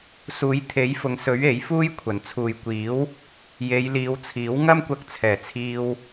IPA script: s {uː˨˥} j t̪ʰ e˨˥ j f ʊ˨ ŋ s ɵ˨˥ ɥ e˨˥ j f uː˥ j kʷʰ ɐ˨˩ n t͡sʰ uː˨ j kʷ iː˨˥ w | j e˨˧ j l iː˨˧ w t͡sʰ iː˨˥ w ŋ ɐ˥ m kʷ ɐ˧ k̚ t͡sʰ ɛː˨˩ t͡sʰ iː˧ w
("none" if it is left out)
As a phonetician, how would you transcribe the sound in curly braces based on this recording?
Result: uː˨˥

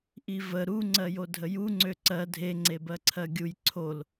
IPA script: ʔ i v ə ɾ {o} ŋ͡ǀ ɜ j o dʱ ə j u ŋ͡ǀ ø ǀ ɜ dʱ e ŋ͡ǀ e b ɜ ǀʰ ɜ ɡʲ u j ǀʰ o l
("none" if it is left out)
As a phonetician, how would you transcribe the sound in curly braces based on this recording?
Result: u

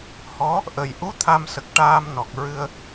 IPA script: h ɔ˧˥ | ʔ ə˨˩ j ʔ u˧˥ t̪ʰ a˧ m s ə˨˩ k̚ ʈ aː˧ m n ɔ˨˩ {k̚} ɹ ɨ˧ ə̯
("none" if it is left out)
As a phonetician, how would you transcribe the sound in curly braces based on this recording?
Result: k̚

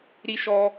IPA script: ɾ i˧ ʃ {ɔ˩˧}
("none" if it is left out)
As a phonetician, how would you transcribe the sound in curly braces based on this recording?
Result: ɔ˧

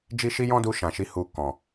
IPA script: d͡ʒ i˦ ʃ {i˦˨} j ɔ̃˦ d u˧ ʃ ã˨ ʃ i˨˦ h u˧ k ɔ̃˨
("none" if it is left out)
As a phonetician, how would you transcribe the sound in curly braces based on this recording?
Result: i˦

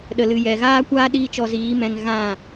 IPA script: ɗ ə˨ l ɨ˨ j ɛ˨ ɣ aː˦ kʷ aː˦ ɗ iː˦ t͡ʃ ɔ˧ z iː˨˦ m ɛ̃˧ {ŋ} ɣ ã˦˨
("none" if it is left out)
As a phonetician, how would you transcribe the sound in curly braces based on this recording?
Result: ŋ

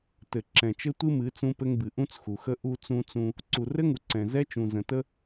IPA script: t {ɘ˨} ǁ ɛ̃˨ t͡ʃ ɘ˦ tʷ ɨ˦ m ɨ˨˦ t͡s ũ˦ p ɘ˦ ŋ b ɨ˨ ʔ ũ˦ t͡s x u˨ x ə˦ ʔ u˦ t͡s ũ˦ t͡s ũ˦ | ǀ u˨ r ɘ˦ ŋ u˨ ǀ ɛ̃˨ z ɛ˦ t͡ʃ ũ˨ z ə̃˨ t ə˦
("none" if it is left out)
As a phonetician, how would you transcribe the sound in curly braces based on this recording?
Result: ɘ˨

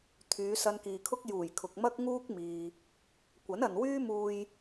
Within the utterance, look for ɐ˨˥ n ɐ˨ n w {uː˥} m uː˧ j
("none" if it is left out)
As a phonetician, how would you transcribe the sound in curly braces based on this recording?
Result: yː˥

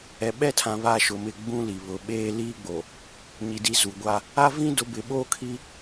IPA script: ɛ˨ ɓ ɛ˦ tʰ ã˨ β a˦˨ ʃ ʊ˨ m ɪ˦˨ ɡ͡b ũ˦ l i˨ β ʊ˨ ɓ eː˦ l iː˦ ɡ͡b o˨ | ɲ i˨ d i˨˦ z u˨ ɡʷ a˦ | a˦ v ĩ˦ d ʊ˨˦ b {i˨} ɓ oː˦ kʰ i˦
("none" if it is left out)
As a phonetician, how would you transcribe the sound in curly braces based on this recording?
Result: ɪ˨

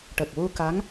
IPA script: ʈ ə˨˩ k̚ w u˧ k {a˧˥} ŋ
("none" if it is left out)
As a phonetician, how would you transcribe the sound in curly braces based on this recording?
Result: a˧˥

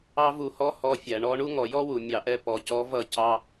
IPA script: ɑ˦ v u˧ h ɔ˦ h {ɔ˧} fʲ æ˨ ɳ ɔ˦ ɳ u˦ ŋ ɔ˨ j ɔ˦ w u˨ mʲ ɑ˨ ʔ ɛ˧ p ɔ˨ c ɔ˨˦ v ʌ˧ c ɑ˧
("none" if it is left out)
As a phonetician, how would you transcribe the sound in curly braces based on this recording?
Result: ɔ˧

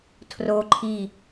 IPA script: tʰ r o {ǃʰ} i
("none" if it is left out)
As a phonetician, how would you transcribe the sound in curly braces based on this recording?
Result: ǃʰ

